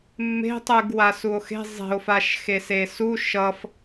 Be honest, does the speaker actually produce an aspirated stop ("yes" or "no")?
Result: no